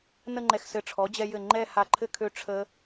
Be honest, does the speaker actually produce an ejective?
no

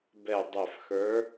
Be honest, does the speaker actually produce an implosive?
no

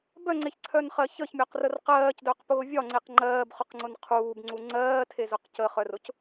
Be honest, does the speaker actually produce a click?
yes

